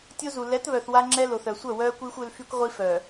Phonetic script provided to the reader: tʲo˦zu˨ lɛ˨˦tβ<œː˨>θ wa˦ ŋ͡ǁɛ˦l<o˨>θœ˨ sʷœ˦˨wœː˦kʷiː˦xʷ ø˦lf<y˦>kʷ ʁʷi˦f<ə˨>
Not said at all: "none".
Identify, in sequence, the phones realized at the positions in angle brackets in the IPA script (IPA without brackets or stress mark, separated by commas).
œ˨, o˨, y˦, œ˨